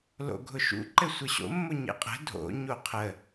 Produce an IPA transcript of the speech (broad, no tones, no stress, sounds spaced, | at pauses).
l o̰ ɡʱ ʊ ʃ ṵ ǃ ɘ sʷ ɘ ɕ o̰ mː ʊ ɲ ḛ qʼ ə̤ dʱ o̰ ɲ o qʰ ə